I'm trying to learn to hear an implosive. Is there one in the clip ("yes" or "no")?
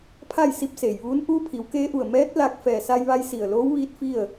no